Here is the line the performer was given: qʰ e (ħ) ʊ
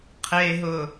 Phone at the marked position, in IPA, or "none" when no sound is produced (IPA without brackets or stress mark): ɦ